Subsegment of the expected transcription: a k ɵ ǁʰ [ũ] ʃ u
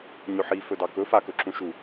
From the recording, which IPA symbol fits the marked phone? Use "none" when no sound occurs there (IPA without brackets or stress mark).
ũ